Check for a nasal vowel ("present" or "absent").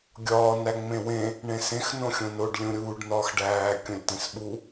present